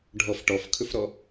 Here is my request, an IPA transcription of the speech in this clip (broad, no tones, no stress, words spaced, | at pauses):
ɖʱɔf ʈɔfkʰɵfɾɔ